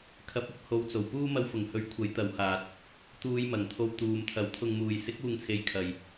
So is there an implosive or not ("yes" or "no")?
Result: no